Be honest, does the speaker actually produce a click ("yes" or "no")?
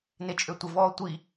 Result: no